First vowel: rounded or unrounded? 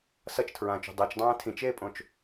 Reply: unrounded